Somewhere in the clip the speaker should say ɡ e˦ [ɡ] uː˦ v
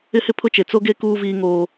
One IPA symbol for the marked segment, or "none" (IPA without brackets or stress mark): k